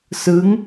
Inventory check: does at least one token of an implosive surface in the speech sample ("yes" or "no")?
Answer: no